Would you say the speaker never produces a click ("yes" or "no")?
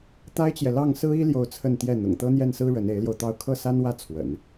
yes